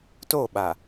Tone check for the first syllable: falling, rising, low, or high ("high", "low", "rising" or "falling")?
falling